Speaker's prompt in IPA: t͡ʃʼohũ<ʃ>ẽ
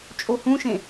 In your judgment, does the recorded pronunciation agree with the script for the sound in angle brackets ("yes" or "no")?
yes